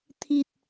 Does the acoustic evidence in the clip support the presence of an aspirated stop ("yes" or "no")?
yes